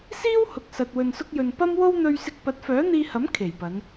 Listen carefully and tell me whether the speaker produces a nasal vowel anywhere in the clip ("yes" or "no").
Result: no